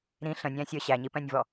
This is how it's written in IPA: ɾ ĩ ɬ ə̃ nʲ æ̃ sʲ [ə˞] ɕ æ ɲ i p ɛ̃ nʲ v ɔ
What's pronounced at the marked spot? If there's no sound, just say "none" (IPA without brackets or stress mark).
ə˞